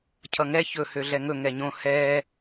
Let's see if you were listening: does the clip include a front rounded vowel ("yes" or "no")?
yes